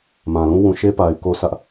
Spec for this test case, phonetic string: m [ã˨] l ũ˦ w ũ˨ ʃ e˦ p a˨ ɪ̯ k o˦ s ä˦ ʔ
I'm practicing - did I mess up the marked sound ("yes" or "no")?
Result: no